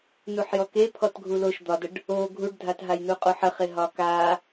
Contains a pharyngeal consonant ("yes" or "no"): yes